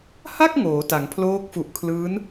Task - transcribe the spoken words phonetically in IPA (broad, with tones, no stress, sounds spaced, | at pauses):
h a˥˩ k̚ ŋ oː˩˦ t a˩˦ ŋ pʰ l oː˦˥ k̚ f u˨˩ ʔ kʰ l ɯː˦˥ n